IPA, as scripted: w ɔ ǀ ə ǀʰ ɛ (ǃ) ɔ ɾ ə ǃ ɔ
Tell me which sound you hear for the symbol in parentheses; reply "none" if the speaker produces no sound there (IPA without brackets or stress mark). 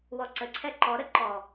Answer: ǃ